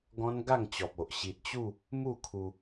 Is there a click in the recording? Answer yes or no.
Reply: no